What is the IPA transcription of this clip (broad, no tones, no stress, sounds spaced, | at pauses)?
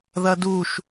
ð ɐ d u ʃ